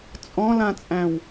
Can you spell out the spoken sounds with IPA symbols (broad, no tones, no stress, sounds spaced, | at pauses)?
t͡sʼ ɔ̃ l ã t͡sʼ æ̃ w